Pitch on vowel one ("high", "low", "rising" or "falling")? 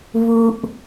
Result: low